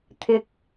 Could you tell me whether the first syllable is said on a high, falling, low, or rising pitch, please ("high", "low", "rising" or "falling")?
low